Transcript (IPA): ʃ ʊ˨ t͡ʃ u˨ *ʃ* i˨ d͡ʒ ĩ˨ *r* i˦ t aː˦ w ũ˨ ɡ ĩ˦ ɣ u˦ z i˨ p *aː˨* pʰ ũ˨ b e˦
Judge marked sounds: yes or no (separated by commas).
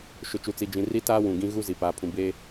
no, yes, yes